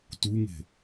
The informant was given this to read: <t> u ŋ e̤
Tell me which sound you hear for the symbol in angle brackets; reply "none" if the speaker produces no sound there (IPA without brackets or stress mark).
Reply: t